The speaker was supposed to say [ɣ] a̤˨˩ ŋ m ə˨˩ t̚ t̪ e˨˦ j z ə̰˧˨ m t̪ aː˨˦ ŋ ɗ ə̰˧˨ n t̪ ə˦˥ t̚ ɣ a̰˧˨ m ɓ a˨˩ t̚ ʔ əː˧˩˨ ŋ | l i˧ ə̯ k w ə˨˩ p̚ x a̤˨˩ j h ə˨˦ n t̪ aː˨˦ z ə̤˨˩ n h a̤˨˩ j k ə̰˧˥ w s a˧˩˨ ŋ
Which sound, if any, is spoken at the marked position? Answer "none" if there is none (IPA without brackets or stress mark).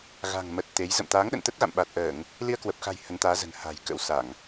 ɣ